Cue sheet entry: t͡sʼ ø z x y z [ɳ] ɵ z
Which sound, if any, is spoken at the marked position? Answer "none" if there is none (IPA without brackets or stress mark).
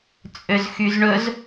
ɳ